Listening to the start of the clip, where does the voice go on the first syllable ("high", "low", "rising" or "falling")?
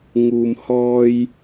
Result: low